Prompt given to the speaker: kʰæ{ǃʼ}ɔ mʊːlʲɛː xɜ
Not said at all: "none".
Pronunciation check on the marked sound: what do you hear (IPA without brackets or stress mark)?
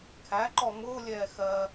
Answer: ǃ